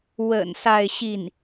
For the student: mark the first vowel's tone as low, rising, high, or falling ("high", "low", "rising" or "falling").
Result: low